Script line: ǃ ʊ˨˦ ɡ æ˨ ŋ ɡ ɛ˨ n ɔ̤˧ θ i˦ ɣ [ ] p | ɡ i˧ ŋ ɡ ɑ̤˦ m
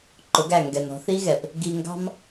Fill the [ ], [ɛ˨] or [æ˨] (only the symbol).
ɛ˨